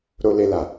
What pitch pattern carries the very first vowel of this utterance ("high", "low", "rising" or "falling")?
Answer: high